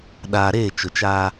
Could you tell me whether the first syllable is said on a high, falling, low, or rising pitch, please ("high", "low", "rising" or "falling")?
low